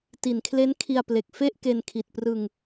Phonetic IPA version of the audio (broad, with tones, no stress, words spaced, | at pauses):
ti˨˩nkʰle˦˥nkʰi˧a̯ple˨˩k̚ fe˥˩ʔke˧n kʰi˨˩t̚prɯ˧ŋ